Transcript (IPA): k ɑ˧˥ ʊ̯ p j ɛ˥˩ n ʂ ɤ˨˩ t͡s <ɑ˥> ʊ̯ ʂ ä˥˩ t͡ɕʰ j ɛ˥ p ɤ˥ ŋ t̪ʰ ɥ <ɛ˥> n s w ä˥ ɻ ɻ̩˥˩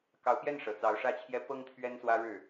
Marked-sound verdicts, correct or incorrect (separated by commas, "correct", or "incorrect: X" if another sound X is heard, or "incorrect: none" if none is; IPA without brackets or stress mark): incorrect: ɑ˧˥, correct